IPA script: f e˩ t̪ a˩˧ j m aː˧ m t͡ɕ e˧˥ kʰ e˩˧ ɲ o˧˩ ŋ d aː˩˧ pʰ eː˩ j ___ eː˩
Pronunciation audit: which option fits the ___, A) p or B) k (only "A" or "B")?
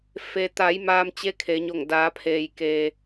B